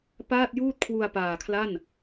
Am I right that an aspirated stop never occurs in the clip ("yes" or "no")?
no